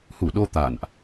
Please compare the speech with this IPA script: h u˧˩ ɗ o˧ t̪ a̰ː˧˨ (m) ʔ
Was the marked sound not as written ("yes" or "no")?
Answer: yes